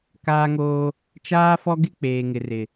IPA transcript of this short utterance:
kaː˦ŋoː˦ | t͡ʃaː˦fɔ˦ɡɪ˦ k͡peː˨ŋɪ˨rɪ˨

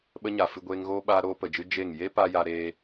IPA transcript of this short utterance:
ɓə˧ ɲa˨ fɨ˧ɡʷeː˧ŋɣoː˦ ɓaː˧ɾoː˧pə˨d͡ʒɨ˧ d͡ʒe˦˨ŋ je˦ pa˦ja˧ɾeː˧

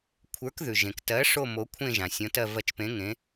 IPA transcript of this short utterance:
kʷʰə˞˨˥kðʉ˩ʒẽ˩ktɜ˨˥ ʂo˥˧mo˨˥kʷʰẽ˥˧ ʒã˩sʲõ˨˥tɜ˥˧ vɜ˧˩t͡ʃpẽ˨˥ ŋẽ˨˥

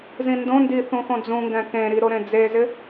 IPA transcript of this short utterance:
zĩndõndi θũxõd͡zũŋɡɛ̃ kẽɾi ɾoɾẽd͡zezɪ

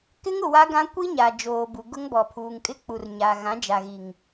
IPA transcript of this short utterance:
kɪ˦ŋʊ˨ wa˦ɡã˦ kʷi˦ɲa˨ d͡ʒoː˨bu˨ ɡʊ˦ŋbɔ˨pʰuː˨ŋ kʼɪ˦ k͡pu˨rɲa˨ ɣã˨˦d͡ʒa˨ɣi˨ŋ

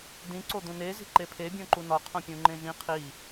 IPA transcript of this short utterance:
dĩ ǀod̪ũne zi̤ǃepʰe bʲõǃunɒ qʰõpʲũŋ͡ǃẽʒĩ qʰi

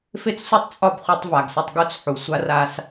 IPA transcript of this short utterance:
fe˦t͡ssʷe˦tˤt͡sʼɒ˦˨b χʷɛ˦tˤva˨ɡsɐ˦tˤ ɡo˦t͡sħu˨ sʷa˦ra˦s

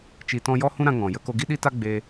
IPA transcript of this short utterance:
t͡ʃi˧tɔ̃˦ jɔ˦hũ˦ɾã˧ ŋɔ̃˨ jə˧ ko˧ɡi˦ɗi˦ta˦ ɡ͡be˧

